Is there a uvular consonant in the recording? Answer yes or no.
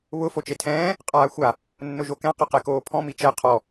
yes